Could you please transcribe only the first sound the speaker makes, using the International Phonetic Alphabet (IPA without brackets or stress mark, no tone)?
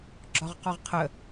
ɡ͡ǁ